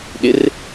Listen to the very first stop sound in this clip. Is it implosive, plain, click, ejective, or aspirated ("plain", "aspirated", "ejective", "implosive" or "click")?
implosive